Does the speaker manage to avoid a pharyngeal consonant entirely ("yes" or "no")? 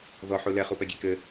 no